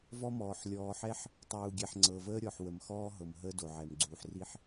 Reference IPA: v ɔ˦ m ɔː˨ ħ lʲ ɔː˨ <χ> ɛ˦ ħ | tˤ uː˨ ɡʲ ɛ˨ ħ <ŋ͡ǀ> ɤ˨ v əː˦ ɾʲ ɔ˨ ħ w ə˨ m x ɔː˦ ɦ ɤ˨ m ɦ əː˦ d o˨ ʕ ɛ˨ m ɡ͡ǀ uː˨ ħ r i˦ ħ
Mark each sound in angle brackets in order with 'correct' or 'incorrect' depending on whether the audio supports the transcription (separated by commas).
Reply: incorrect, correct